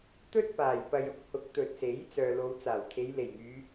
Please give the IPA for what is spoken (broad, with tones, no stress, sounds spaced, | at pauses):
t̪ ɵ˥ t̚ p aː˨˩ j p ɐ˨ j ʊ˨˥ k̚ h ʊ˨˥ k̚ t̪ ɵ˨ t̚ s e˨˥ j t͡s œː˨ l o˨˧ w t͡s aː˨˩ w t̪ʰ e˨˧ j l e˨˩ j ŋ yː˨˧